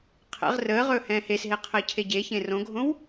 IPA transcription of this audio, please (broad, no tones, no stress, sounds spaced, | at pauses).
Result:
qʰ ɛ̰ ʁ r əː ʁ ɵː h ɛ̃ː h e s ɦ e qʰ əː cʰ e ɟ e ç ẽ r õ ɡʱ õ w